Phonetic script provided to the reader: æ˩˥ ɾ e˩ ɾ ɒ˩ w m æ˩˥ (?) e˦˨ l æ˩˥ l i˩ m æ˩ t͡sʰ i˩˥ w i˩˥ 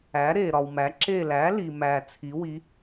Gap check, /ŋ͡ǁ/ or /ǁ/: ǁ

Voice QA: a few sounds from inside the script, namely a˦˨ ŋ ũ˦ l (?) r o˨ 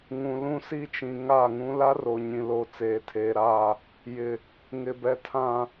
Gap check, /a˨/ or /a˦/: a˦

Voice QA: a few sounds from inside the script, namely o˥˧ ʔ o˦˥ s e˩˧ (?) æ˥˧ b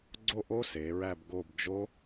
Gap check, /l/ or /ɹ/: ɹ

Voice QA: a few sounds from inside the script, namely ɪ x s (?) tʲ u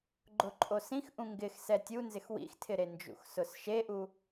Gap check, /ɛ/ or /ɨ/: ɛ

